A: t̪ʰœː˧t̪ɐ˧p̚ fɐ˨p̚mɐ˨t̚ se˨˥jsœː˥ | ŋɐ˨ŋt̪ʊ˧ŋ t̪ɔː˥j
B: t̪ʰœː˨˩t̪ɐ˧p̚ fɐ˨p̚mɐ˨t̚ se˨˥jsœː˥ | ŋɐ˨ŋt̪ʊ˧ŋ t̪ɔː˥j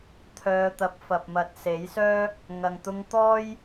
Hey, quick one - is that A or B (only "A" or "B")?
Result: A